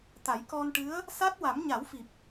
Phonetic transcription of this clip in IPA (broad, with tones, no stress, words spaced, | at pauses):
t̪a˨˩˦jkɔ˧nʈɨ˧˥ə̯ | sa˦˥t̚ wa˨˩˦mɲa˨˩˦wfi˨˩p̚